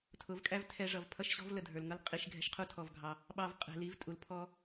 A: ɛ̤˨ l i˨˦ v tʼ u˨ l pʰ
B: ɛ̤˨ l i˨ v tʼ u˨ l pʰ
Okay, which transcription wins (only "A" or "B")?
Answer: A